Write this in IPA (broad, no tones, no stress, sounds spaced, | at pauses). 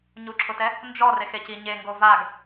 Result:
ɲ u ǁʰ ʊ t ɛ | n d͡ʒ ɔ r e x e c i ɲ e ŋ ɡ o v a ɡ